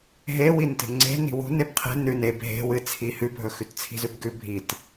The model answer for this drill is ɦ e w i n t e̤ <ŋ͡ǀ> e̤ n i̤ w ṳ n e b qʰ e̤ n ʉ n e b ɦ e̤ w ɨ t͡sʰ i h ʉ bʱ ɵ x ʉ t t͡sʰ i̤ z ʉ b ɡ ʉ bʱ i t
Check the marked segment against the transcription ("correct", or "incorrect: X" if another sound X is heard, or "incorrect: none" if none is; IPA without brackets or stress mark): correct